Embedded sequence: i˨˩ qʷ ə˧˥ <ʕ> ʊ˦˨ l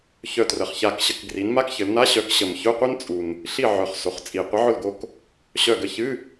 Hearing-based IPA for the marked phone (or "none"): ʕ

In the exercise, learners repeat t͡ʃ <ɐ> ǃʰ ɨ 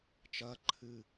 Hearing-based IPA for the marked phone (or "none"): ɐ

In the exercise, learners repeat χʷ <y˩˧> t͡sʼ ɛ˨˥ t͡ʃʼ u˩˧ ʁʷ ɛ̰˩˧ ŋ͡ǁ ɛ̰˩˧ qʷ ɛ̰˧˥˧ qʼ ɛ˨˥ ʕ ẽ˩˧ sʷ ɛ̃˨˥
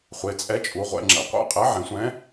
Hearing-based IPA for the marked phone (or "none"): e˩˧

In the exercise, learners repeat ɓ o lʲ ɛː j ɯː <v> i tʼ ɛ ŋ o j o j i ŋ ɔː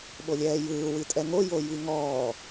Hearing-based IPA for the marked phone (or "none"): w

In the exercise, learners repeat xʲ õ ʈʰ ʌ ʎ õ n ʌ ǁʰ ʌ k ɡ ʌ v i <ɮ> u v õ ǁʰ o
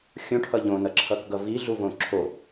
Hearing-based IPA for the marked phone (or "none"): ɮ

